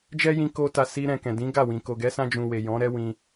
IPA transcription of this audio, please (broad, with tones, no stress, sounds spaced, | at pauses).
d͡ʒ ɛ˦ j ĩ˧ k o˦ t a˧ s i˧ ɾ ɛ̃˨ k ɛ̃˨ d ĩ˨˦ ɡ a˦˨ w ĩ˨ k o˨ ɡ ɛ˨˦ s ã˧ d͡ʒ ũ˨ w e˨ j ɔ̃˨˦ ɾ ɛ˦ w ĩ˧